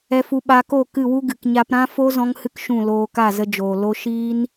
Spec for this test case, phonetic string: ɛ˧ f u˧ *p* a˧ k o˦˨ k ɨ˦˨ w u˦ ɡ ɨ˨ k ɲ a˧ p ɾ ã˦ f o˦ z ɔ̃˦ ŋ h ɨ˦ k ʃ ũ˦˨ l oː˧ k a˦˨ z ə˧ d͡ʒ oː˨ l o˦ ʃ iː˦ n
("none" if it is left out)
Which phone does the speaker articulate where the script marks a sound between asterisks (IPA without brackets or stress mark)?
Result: ɓ